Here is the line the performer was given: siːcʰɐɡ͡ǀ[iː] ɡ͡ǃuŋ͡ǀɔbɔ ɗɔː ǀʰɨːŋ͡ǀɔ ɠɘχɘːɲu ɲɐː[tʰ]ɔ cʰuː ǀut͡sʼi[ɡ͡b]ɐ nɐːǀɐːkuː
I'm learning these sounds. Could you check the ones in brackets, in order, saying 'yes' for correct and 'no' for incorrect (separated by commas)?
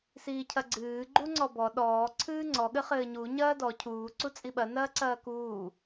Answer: no, no, no